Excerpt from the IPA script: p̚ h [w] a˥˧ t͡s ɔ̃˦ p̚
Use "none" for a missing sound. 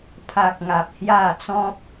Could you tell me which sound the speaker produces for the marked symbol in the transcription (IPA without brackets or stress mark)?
j